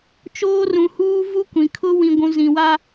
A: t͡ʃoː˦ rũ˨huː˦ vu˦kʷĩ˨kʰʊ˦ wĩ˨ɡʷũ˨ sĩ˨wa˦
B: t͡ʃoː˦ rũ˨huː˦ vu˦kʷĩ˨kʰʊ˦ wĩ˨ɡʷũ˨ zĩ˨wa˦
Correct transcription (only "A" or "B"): B